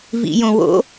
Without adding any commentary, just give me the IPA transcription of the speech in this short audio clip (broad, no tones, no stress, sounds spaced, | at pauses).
v ḭ j õ w o̰